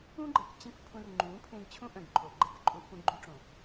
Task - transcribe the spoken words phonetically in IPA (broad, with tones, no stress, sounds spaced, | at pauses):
ũ˦ ɡ͡ǃ ɛ˨ k t͡ɕ ẽ˦ k pʰ ũ˧ r ŋ͡ǃ ũ˨˦ pʰ ẽ˧ ɡ t͡ɕʰ ũ˦ ʔ œ̃˨ ɡ ǃʰ o˨ ɡ͡ǃ ɛ˦ k ǃʼ u˧ ʔ p ũ˧ ɡ͡ǃ u˧ ʈ͡ʂ õ˨